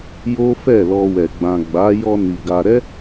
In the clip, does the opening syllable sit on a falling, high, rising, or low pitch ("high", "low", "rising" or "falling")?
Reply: high